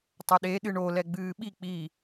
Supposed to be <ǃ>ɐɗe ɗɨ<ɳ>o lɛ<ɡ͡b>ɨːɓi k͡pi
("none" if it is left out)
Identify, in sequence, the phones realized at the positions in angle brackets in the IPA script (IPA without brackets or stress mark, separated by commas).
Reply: tˤ, ɳ, ɡ͡b